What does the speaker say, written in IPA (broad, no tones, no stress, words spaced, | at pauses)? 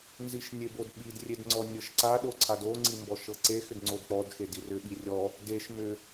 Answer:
nziʃnʲebodɓid rʲedŋ͡ǀɔnʲɤʃǀa ɗoǀʰado ŋ͡ǀimbɔʃɤǀe xʏdŋ͡ǀodk͡pɔd xedirʏ ɓirʲɔ | deʃ mʏ